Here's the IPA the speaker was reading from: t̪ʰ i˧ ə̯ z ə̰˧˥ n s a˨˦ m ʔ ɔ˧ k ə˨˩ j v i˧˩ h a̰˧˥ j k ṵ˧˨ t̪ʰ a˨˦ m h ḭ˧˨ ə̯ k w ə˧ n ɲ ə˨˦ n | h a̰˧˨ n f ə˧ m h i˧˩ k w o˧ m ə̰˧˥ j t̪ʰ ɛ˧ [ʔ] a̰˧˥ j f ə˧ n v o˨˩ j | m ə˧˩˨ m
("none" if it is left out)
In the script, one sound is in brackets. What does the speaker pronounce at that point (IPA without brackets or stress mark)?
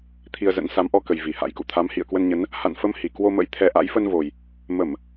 ʔ